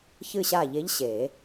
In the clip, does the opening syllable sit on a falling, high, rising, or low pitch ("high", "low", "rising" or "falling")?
falling